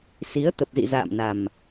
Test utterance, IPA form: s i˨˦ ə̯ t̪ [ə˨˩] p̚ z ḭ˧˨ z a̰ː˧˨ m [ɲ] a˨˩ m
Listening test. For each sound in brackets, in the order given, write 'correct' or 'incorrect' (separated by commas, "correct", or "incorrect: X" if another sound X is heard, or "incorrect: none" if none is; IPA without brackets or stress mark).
correct, incorrect: n